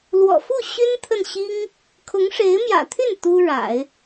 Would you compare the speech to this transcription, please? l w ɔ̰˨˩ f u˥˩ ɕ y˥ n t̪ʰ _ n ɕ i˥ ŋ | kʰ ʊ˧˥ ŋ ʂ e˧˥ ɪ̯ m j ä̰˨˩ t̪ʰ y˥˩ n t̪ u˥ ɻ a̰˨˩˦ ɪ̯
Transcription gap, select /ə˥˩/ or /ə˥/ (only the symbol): ə˥˩